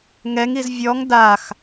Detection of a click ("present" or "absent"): absent